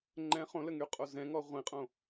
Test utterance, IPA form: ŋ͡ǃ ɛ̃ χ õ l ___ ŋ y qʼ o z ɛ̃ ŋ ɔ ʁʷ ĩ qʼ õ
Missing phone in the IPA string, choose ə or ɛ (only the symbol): ə